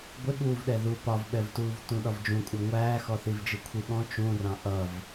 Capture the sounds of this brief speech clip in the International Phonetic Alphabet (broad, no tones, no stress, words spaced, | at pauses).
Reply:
ɡʷɪɠuːvɗɛ ðu pɒvɓɛvtuːvtũ ɗɒvd͡ʒũkʷʼɜ ŋʷæːxɔθivd͡ʒi kʷʰiɠɔ̃ t͡ʃũrɑ̃ ʔʌv